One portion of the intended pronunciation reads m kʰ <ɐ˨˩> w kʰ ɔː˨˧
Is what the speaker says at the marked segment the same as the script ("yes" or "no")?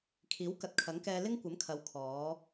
no